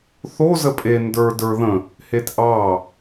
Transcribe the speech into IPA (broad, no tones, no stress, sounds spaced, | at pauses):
θ o z ə pʼ e n d ə˞ d ə˞ ð ə̃ | h e t ʔ ɑ